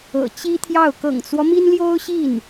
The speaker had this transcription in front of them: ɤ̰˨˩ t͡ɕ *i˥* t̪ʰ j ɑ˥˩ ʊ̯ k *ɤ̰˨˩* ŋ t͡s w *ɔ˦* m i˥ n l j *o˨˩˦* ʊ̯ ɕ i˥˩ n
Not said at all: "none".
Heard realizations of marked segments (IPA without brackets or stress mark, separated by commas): i˥, ɤ̰˨˩, ɔ˦, o˥